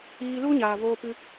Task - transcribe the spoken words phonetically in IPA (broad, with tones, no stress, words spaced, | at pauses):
iː˧lu˦ɲaː˨ voː˧pɨ˧